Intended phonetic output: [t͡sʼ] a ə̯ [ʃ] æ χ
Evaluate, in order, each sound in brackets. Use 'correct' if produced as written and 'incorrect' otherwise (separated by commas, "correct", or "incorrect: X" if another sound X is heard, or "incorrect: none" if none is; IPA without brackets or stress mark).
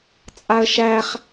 correct, correct